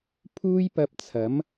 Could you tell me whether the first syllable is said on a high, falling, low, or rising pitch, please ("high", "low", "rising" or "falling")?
high